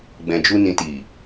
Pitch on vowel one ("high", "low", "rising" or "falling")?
low